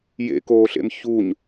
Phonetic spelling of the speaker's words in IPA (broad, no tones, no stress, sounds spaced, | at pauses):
j ḛ k oː ɬ ḛ m ç u ɲ